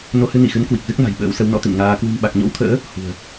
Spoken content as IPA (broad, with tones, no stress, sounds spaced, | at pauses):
n o˧ h ɨ˧ n i˧˩ x ɨ˨˦ n k w i˨˩ k̚ z ɨ˦˥ k̚ n a̤˨˩ j ɓ ə̰ː˧˥ w s ə˨˦ w n ɔ̰˧˥ t̪ ḭ˧˨ n ŋ aː˧ k w ɨ̤˨˩ m ɓ a˨˩ k̚ ɲ o̰˧˥ w t̪ʰ ə̰ː˧˥ | h ṳ˨˩ ə̯